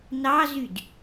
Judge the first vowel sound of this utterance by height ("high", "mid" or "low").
low